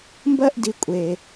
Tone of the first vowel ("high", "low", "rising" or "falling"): high